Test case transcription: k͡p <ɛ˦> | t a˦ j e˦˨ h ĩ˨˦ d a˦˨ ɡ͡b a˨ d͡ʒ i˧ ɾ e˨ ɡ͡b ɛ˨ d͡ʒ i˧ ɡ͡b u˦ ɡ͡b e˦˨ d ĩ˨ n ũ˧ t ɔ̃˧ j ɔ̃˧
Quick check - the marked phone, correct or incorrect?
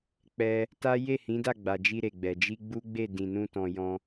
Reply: incorrect